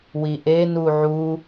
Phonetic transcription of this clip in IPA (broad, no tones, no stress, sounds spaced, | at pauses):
w i ʔ e n u ʕ u